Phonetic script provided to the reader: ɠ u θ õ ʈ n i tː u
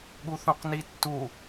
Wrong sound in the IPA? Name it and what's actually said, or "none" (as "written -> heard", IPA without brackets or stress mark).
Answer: ʈ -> q